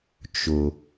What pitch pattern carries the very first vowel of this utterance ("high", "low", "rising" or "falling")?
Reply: low